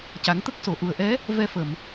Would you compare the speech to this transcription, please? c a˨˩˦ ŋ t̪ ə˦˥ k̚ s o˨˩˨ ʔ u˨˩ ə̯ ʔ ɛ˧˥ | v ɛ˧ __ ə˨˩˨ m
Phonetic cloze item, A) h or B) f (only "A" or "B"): B